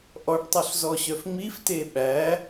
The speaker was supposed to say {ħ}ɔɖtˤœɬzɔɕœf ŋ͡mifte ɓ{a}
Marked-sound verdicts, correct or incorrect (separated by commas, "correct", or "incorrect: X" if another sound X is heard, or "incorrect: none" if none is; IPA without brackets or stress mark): incorrect: ʔ, incorrect: æ